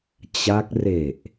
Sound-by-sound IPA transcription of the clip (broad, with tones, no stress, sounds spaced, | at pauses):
t͡ɕ a˦˥ k̚ r e˨˩ ʔ